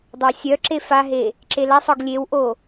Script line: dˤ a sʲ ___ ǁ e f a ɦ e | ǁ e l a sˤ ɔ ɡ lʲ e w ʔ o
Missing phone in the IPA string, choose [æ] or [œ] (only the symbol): œ